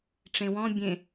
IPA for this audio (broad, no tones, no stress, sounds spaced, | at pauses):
ʈ͡ʂ ẽ w ɔ̃ bʲ ẽ